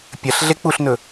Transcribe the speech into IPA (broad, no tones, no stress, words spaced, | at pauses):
pʲɐɬ ɮek͡puɬnɵ